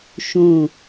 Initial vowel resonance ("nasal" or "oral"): nasal